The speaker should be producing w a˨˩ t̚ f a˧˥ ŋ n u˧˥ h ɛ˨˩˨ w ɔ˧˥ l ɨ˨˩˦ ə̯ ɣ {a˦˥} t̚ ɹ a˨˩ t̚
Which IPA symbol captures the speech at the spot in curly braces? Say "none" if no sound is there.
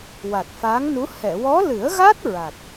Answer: a˦˥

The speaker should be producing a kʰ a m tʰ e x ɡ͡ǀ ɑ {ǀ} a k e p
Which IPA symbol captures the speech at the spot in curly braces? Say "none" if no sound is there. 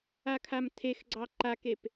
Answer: ǃ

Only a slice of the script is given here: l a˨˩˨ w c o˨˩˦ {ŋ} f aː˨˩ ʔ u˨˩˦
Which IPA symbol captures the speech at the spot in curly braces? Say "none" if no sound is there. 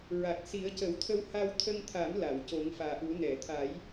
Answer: ŋ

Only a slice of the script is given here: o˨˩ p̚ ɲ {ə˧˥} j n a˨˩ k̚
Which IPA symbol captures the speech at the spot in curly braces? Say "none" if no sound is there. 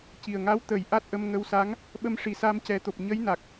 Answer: ə˧˥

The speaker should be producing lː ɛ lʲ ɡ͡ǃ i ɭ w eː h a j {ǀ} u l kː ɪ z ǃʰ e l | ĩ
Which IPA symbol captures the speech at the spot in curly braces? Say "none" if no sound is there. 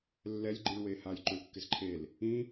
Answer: ǃ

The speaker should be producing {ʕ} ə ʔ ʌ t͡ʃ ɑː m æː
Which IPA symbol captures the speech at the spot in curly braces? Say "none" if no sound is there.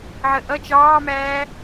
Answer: ʕ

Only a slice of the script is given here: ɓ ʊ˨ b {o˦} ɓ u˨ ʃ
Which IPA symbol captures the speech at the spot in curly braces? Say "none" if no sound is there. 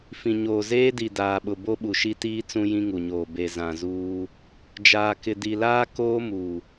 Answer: o˦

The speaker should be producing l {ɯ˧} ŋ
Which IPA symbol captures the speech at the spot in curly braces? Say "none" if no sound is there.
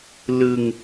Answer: ɯ˧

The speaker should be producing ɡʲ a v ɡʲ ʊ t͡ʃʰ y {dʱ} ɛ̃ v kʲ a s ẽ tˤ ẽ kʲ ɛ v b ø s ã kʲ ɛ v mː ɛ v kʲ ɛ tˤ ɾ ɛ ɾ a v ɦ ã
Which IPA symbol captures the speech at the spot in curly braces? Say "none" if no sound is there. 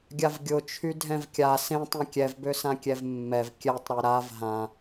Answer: dʱ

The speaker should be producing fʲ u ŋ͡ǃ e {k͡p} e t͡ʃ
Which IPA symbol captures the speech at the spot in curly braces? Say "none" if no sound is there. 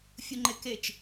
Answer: k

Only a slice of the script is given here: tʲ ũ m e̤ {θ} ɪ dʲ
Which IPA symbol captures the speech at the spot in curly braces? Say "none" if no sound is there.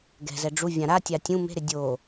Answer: ɾ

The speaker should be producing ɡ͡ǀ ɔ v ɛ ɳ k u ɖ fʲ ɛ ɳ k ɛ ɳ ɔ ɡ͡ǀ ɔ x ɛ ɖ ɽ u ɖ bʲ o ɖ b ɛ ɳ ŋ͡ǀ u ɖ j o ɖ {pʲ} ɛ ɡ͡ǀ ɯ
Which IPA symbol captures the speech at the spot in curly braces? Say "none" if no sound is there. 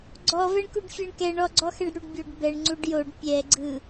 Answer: pʲ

